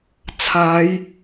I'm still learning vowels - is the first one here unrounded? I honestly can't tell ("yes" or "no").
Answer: yes